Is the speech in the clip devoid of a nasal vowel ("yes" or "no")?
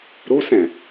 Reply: no